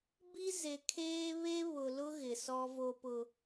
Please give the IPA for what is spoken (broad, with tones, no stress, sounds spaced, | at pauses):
b i˦ z e˨ kʰ eː˦ β e˦ β ʊ˨ l ʊ˦ ɣ ɪ˨ s ɔ˦ v o˦ p ʊ˦